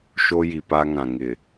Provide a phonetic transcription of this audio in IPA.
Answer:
ʃo˦ji˨pa˦ŋã˨ ŋɪ˨

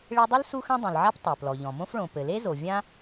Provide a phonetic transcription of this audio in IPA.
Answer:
ɭe˥ dˤʊ˥l su˥xã˥dˤũ˩lʕa˥p tˤe˩plɔ˩ʎɔ̃˩ mõ˥fɭõ˩ pɘ˩le˥zo˩ vʲã˥

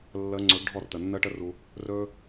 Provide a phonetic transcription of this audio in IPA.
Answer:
lːəː˧ŋ͡ǀɵ˨˦ɡ ɖʱɔ˦˨rtə˨nːəː˦ʈə˦ ru˧ | rɵː˦

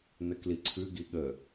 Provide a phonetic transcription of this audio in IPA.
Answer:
nəkliǀʰʉɡi ɠə

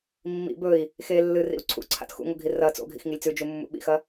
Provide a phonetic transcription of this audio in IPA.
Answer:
mːḭ bɵi̯ | xe lːɨrḭu̯ ǀʰṵǀʰa̰t xṵŋoɡʱi rɐ t͡so̰ɡʱḭxŋilʲ t͡sʉd͡ʒumːṵ ɓḭxɐ

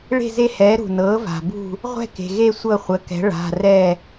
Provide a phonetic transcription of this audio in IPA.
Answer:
ɭe̤˦˨ze˦˨hɛː˩˥ ɾṳ˩nɤː˩˥va̤˩bṳ˦˨ | ʁʷɛ̤˦˨ke̤˩ɣe˦˨ sʷɤ˦˨χʷə˩˧˩kɛ̤˩˥ ɭa̤˩˧˩rɛ˦˨

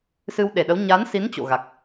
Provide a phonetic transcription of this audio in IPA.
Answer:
sɨ˧wɗe˧˩ɗə˨˦w ɲa˨˦nsi˨˦n t͡ɕo̰˧˨ɣa˨˩k̚

